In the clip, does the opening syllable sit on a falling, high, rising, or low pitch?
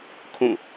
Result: falling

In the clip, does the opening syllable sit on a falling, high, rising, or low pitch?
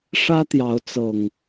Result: high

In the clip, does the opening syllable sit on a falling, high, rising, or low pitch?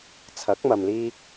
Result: rising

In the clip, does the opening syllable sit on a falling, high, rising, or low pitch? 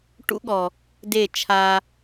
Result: high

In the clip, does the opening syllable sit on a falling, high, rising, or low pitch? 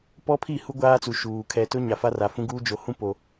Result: high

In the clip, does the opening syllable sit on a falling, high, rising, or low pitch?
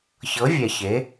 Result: rising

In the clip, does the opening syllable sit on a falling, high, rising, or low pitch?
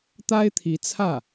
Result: high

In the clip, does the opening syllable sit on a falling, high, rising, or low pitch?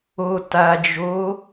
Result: low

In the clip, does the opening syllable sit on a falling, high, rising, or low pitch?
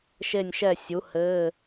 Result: falling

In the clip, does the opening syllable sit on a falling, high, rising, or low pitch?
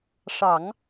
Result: low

